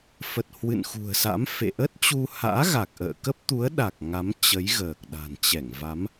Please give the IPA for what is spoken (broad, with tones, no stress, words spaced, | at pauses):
fə˨˩t̚ hwɨ̰˧˨nxṳ˨˩ə̯sa̰˧˥mfḛ˧˨ ʔə˦˥t̚ t͡ɕu˧ ha̰ː˧˥ɣa˨˩k̚ʔə̰ː˧˨ kə˦˥p̚t̪u˨˦ə̯ɗa˨˩k̚ ŋa˨˦mt͡ɕə˨˦j ɣəː˨˩k̚ɗa̤˨˩nt͡ɕɛ˧˩ŋva˨˦m